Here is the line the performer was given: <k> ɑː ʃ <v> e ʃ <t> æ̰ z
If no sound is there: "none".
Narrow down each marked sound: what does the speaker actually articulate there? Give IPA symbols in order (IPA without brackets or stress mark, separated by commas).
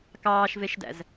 k, v, d